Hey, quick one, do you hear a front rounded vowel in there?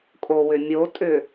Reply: yes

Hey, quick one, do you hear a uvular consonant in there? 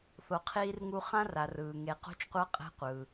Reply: yes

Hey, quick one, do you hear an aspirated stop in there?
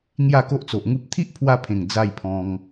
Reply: yes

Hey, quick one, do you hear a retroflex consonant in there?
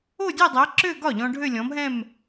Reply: yes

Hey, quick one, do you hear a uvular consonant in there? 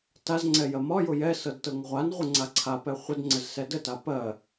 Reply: yes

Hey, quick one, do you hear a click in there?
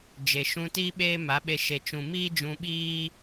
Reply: no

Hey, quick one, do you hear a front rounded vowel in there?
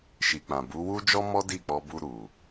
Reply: no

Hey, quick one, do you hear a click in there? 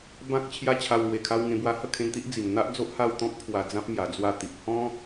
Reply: no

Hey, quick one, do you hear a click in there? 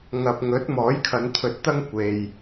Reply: no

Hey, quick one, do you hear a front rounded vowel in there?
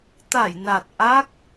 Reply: no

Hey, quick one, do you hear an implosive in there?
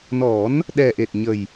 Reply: yes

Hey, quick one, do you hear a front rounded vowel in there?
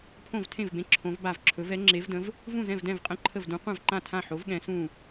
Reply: no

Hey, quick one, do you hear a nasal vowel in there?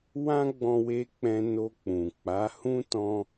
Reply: yes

